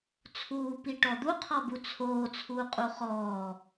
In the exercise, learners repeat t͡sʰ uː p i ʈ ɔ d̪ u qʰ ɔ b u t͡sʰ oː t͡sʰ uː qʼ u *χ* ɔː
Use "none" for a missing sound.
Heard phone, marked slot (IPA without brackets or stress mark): χ